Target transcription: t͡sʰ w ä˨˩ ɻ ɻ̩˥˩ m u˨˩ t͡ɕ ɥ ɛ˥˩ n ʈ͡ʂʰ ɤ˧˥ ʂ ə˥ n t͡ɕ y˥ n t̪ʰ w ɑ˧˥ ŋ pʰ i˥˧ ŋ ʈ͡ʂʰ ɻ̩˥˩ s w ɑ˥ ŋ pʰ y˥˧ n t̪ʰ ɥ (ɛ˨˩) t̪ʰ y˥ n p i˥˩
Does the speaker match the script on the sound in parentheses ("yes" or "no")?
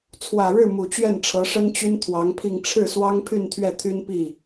no